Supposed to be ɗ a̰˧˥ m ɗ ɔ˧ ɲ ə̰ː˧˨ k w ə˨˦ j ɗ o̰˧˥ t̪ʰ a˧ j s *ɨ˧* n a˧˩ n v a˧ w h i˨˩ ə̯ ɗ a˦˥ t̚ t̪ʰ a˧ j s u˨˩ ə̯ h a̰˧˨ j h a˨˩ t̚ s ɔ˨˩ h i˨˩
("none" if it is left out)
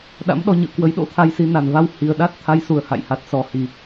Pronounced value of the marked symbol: i˧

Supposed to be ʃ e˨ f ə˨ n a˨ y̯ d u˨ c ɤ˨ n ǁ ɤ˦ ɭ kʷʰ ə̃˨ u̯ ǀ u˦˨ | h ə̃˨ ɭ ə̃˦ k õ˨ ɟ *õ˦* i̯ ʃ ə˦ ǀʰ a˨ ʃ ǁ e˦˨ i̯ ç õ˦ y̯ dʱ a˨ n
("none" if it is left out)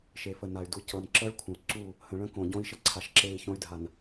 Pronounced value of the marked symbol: õ˦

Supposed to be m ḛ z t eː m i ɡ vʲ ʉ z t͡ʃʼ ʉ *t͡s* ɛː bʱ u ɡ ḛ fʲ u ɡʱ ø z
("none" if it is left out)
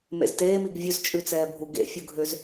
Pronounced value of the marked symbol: t͡s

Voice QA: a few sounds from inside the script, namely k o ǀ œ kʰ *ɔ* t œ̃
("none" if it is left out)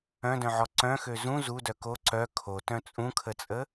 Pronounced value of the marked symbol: o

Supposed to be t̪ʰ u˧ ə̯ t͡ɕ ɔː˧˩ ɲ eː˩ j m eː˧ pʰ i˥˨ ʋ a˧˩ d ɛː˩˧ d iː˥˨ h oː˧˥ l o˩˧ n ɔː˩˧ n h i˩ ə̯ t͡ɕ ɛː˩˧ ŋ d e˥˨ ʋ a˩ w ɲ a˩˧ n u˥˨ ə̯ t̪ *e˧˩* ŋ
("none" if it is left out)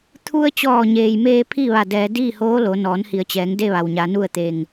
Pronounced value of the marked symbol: e˧˩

